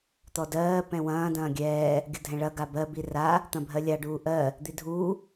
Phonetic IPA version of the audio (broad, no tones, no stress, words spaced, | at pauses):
t̪ɔdɜː pɛ̃wɐ̃ː dɐ̃ːɡʲɛː | ɡʲədʱɛ̃ɭɐ ɡabɜ bira | t̪ɐ̃bʱɜlʲa ɖuːʔɜ | d̪idʱuː